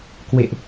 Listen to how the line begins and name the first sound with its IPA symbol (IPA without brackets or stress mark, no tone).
k